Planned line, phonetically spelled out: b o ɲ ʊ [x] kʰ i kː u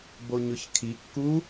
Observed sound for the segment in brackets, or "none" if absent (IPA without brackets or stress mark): ç